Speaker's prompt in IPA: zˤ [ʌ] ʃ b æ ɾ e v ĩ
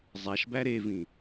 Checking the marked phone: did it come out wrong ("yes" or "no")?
yes